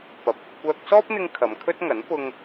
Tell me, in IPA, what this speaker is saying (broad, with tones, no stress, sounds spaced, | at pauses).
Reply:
p ɐ˨˥ p̚ ɐ˧ p̚ kʷ œː˧ k̚ s ɔː˥ p̚ n̪ ɪ˧ ŋ kʰ ɐ˨˧ m kʰ ɵ˥ t̚ ŋ ɐ˨˥ n p ʊ˧ ŋ